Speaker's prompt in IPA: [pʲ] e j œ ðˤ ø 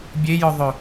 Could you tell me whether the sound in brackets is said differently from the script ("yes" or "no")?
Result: yes